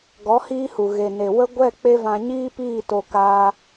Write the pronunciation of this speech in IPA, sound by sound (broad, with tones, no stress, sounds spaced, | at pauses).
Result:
ɡ ɔ˨˦ h iː˦ h u˨ ɣ e˨ n e˨ w ə˦ ɡʷ ɛ˦˨ k͡p e˦ v ã˧ ɲ iː˦ p iː˦˨ t o˧ k aː˧